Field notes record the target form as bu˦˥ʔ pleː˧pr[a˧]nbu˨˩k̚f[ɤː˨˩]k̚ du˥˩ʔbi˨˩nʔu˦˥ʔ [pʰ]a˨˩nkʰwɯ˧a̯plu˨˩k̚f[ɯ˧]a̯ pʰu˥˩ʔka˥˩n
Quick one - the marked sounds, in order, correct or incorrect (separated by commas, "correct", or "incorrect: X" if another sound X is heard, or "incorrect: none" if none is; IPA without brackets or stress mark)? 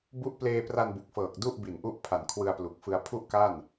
correct, correct, correct, correct